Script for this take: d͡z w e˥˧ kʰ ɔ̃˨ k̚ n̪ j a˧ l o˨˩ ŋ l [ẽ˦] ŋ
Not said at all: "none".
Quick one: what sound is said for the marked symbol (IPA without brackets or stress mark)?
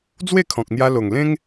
ẽ˦